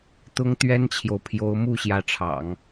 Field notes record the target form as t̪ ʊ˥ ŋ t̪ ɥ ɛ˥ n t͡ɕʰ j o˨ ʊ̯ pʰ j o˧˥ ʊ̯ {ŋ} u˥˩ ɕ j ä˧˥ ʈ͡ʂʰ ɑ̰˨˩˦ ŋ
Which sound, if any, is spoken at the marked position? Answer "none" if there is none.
m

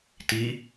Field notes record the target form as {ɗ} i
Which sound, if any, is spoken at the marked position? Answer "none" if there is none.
t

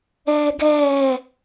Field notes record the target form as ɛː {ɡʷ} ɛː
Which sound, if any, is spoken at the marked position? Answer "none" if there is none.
ɡ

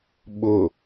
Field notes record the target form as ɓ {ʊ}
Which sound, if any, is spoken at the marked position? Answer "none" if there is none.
ʊ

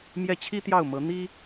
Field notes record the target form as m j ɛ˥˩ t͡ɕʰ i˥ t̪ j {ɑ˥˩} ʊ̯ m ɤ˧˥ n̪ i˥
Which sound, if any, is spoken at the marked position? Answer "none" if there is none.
ɑ˥˩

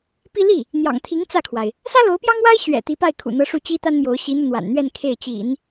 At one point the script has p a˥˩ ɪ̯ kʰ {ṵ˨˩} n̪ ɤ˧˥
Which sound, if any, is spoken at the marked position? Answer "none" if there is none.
ṵ˨˩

